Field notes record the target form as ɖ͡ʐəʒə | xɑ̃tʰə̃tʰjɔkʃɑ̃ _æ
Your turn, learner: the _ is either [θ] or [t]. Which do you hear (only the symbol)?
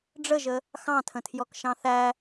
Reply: θ